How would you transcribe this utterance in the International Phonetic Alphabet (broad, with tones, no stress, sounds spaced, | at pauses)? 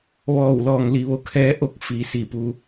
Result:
ʋ ɔː˧˩ w l ɔː˩ ŋ l i˩˧ ʋ o˩ kʰ ɛː˧˥ ʔ o˧˥ k̚ f iː˩ s i˧˩ p u˩